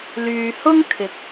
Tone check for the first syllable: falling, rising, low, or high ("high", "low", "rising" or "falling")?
low